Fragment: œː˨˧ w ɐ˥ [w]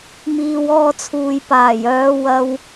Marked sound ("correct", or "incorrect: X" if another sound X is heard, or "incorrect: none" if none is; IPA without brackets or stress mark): correct